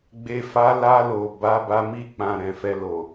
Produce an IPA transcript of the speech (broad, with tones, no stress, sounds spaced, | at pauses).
ɡ͡b e˨ f a˨˦ l a˧ l o˨ b a˨˦ b a˧ m i˧ k͡p ã˨ ɾ ɛ̃˨ f ɛ˧ l o˨